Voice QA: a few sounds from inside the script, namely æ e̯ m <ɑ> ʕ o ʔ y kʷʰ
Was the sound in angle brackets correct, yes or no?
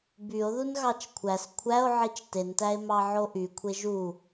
yes